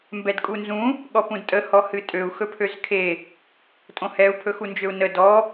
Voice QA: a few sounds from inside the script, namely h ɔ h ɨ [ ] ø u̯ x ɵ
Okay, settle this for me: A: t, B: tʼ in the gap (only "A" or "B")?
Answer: B